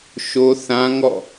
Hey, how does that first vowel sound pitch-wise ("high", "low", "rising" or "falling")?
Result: high